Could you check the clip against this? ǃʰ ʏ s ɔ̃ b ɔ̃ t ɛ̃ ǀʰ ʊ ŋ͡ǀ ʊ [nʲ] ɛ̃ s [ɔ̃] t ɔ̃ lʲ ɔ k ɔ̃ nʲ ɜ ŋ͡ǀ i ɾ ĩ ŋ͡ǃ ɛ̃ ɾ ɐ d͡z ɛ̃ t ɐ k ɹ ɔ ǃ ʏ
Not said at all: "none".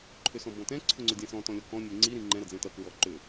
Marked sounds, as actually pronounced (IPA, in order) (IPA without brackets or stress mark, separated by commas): dʲ, ɔ̃